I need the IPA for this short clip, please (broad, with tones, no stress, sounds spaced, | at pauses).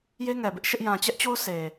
j e˦ ŋ ɛ˨ b ɪ˦ ʔ ʃ ɪ˦ ʔ j ã˨ t͡ɕ ɛ˦ ʔ t͡ɕ o˦ ʊ̯ sʰ e˨